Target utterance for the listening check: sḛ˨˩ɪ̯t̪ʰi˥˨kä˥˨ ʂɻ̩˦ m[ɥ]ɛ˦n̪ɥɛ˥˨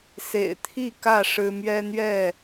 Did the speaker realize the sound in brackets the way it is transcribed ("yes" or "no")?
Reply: yes